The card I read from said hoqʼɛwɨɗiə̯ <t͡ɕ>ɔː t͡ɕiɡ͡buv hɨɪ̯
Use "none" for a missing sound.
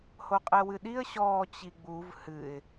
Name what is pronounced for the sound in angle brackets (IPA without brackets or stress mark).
ɕ